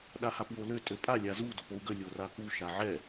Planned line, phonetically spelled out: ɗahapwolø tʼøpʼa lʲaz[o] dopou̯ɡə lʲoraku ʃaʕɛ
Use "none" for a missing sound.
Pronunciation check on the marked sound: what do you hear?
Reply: u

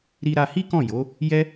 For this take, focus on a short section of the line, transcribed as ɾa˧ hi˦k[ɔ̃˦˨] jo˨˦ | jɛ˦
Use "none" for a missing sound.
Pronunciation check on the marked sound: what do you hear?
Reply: ɔ̃˦˨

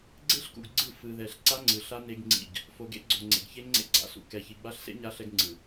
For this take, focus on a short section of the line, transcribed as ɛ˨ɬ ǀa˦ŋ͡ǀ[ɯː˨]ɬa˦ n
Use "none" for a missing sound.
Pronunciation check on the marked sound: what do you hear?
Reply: ɯ˨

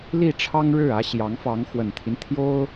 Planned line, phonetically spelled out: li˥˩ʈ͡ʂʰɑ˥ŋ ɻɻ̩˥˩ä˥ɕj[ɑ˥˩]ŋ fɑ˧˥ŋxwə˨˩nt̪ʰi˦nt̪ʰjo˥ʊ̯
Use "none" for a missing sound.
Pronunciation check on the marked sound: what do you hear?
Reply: ɑ˧˥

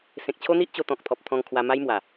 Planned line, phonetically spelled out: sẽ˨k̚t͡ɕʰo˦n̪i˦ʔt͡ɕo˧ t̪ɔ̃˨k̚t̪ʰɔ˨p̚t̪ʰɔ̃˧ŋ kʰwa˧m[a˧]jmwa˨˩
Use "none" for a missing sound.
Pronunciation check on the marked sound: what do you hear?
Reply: a˦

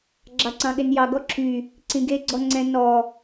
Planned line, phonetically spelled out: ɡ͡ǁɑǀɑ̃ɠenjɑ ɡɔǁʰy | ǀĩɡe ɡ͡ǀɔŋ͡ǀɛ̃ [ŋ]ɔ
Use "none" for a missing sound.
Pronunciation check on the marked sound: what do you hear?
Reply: n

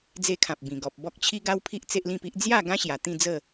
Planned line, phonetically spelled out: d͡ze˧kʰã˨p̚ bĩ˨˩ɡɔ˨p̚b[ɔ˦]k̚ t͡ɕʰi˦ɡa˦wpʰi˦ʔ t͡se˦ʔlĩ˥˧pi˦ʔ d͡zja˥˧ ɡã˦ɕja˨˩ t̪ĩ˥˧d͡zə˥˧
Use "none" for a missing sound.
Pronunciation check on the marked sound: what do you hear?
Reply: ɔ˦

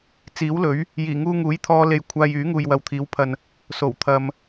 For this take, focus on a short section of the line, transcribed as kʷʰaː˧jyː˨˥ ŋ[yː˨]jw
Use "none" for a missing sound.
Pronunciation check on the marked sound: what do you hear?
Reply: uː˨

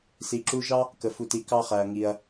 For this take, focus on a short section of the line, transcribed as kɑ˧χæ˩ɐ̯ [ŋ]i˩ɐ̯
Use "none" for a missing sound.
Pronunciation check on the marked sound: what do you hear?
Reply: ŋ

